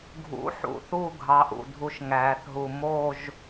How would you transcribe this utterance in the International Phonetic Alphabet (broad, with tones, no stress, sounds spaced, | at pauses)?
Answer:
ɡʱ ṵ˨˥ ħ ṵ˩˧ θ u˥˧ ɡʱ ɑ˨˥ ʔ ṵ˧˩˧ dʱ u˨˥ ʃ ŋ æː˩˧ θ ɦ u˨˩ m o˥˧ ʒ